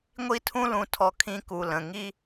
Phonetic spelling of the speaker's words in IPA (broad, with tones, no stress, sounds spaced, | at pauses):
ŋʷ i˥ tʰ ũ˥ l ũ˧ tʰ ɔ˧ kʰ ĩ˥ k u˧ l ə̃˩˧˩ ŋ i˥